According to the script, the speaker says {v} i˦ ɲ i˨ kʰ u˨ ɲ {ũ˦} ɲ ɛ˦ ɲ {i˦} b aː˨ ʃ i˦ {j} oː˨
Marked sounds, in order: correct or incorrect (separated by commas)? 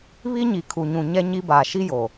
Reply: incorrect, incorrect, correct, correct